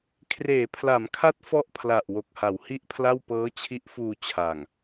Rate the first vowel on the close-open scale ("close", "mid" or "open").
mid